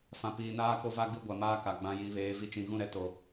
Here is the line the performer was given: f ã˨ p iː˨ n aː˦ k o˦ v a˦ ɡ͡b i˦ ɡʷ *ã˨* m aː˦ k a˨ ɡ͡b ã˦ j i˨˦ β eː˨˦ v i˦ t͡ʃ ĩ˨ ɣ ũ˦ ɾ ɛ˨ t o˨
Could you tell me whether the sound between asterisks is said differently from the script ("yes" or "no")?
yes